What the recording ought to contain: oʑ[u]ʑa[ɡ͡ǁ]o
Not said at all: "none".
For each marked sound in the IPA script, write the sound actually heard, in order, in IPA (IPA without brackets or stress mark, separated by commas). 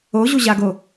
u, ɡ